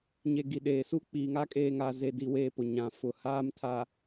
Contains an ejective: yes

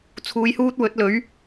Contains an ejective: no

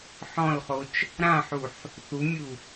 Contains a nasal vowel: yes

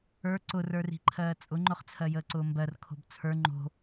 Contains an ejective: yes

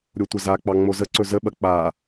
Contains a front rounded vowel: no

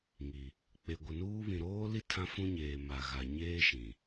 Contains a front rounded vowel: no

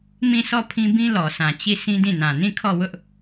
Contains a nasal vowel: yes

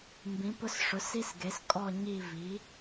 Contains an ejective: yes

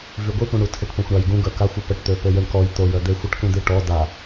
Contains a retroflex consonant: yes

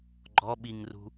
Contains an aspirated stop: no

